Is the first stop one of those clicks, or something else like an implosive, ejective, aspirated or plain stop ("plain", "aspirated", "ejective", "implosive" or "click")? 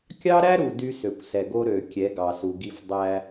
plain